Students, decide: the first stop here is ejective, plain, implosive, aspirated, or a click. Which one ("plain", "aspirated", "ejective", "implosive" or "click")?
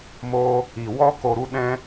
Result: plain